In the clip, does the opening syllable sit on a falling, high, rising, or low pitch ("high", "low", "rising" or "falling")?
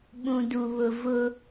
low